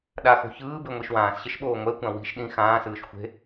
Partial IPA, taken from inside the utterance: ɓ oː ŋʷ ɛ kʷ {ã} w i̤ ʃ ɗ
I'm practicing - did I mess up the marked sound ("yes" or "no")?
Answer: no